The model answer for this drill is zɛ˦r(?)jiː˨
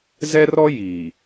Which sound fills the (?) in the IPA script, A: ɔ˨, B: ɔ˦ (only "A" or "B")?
B